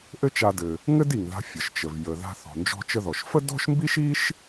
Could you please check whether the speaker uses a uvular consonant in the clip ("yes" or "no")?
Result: no